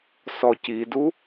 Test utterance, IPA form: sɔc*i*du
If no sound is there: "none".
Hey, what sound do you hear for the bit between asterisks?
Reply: i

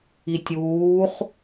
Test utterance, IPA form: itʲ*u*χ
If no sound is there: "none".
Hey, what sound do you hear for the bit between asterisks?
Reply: uː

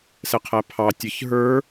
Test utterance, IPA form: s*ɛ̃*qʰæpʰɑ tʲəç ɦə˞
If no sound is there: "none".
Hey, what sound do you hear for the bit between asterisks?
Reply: ɛ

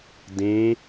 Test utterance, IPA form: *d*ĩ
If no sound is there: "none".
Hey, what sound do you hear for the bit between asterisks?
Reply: d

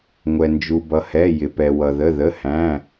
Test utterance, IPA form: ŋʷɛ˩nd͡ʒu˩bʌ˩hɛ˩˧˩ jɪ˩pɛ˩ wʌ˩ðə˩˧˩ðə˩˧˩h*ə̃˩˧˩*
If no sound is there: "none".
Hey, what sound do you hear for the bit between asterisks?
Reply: æ̃˩˧˩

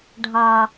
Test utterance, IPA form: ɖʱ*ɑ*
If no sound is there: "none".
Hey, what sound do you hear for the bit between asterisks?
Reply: ɑ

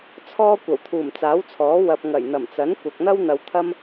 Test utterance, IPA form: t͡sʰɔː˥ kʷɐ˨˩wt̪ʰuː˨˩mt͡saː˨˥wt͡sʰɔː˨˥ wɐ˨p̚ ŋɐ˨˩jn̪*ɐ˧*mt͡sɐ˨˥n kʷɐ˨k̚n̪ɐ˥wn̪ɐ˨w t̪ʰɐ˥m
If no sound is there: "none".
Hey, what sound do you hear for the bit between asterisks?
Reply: ɐ˨˩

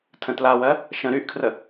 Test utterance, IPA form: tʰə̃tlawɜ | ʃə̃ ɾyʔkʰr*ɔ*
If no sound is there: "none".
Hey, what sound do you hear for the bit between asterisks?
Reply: ə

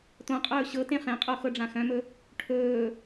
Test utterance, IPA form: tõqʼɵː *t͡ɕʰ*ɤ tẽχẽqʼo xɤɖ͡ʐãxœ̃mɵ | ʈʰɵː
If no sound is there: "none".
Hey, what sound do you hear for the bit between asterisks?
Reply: ɕ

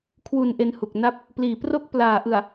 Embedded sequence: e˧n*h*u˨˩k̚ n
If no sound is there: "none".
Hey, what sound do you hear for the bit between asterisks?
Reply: h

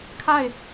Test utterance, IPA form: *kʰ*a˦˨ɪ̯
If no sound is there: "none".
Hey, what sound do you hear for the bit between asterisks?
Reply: kʰ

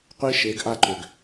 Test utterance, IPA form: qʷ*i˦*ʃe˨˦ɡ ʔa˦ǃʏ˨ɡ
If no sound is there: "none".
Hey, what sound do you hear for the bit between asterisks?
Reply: i˦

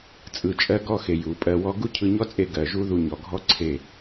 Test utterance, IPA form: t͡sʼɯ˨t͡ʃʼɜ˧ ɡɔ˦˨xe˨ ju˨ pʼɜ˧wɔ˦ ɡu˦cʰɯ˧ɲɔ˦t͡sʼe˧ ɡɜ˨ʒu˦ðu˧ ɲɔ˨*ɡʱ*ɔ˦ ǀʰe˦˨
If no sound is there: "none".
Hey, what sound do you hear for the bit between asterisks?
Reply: ɡʱ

